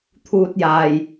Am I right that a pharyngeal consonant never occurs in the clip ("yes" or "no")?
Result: yes